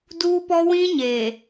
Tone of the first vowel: high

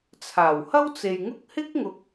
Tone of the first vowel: low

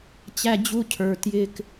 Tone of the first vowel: high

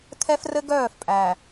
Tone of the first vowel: high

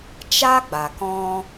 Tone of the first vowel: high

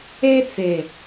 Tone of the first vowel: high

